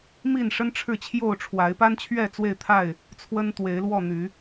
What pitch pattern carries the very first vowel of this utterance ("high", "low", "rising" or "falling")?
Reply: falling